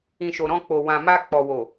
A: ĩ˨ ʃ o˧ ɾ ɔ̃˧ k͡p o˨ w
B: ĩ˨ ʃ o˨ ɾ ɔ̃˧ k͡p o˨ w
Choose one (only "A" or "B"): B